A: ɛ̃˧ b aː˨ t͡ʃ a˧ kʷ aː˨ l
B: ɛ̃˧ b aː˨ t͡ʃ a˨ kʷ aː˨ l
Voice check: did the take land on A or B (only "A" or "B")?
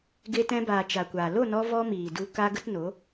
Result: B